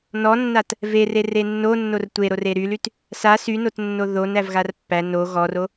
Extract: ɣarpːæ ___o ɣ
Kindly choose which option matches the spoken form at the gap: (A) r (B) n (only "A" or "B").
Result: B